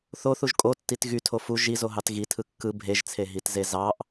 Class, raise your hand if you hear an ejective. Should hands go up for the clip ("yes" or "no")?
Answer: yes